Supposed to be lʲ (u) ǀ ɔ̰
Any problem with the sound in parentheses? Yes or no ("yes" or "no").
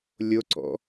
yes